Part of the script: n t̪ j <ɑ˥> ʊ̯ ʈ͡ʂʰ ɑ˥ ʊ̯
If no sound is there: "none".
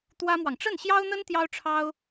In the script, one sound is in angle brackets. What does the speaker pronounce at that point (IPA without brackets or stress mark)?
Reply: ɑ˥